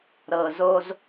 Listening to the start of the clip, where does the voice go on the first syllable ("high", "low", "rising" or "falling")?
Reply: low